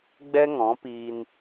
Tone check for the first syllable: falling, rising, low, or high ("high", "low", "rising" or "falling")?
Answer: high